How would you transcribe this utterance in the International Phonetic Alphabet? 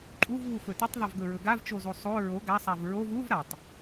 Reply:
ǃʼ u v β u f ɵ t ɵ tˤ ðˤ ɵ v ɡ ɵ ɹ ɵ ɡ a v t͡ʃ o z o sˤ o ɹ o ɡ a sˤ a v ɹ o v u v ɾ a tˤ

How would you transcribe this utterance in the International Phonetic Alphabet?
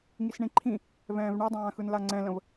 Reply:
ŋ i s ɳ ĩ ǃʰ ĩ | v ɛ̃ː v ɳ ɛ dˤ ãː x ɯ n l a ŋ͡ǀ ɛ̃ l ə̃ v

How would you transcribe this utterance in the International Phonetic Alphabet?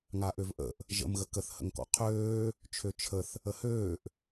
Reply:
ŋ a ʔ ø v ʔ ə̰ ʔ | ʒ ə̰ m ɣ ə k ə θ h ə̰ ŋ k ɔ̰ qʰ øː | t͡ʃʰ ø t͡ʃʰ ə θ | ə h øː ʔ

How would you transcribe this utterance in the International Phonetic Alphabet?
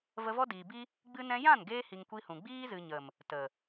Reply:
v ə˧ v ɔ˦ d iː˨ b i˦ | ɡ͡b ɨ˦ n ɛ̃˧ j ã˦˨ n ɡ eː˧ h i˨ ŋ kʷ i˧ h ũ˨ ɡ͡b iː˦ z ɨ˨ ɲ ə˨ m | t ə˨

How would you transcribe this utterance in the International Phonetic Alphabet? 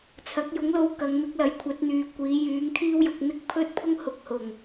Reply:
t͡sʰ ɐ˨˥ k̚ j ʊ˨˥ ŋ l o˧ w k ɐ˨˧ ŋ m ɪ˨˥ k̚ l ɐ˨˥ j kʷʰ ɐ˨˥ t̚ n̪ yː˨˧ kʷ iː˨˥ j yː˨˥ ŋ t̪ʰ iː˥ w j ʊ˨˥ k̚ n̪ ɪ˥ k̚ pʰ ɵ˥ t̚ pʰ ʊ˥ ŋ h ʊ˧ k̚ h ʊ˨˩ ŋ

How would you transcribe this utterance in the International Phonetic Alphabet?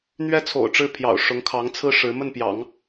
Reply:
n̪ ɥ ɛ˥ t͡sʰ o̰˨˩ ʊ̯ ʈ͡ʂ ɻ̩˥˩ pʰ j ɑ̰˨˩ ʊ̯ ʂ ʊ˧˥ ŋ kʰ ɑ˧˥ ŋ t͡sʰ ɹ̩˥ ʂ ɻ̩˧˥ m ə˥˩ n p j ɑ̰˨˩˦ ŋ

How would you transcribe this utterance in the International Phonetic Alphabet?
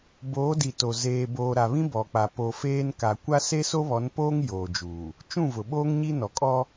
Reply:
b oː˨˦ d i˨ t o˨ z eː˨ b oː˨ ɾ a˨ β ĩ˦ b ɔ˨ k͡p a˨ p o˨ f eː˦ n k a˨ kʷ a˦ s e˦ s o˦ β ɔ˨˦ n p oː˦ ŋ j oː˨ d͡ʒ uː˨ | t͡ʃ ũ˦˨ v ʊ˨ ɓ oː˦ ŋ ɲ i˦ n ɔ˨ kʼ ɔ˦

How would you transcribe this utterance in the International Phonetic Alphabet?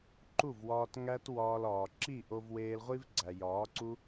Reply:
ǃ u˦˨ v w ɒː˧ t ŋ æ˦ t w ɒː˧ l ɒː˨ ǁ i˦˨ ʔ o˧ v w eː˧ l ʁʷ i˦ v ɡ͡ǀ æ˨ j ɒː˨˦ ǀ u˦

